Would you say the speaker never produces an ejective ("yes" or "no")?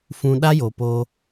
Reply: yes